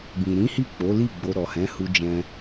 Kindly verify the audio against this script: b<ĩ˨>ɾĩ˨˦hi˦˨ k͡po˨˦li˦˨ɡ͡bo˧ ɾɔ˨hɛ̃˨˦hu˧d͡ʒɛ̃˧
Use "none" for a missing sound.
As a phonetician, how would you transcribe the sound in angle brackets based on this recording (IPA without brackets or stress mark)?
ĩ˨